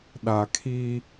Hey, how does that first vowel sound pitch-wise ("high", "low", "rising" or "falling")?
low